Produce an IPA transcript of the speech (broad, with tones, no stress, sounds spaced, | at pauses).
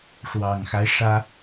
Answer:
ʂ w ɑ˨˩ ŋ x a˦ ɪ̯ ʂ ä˥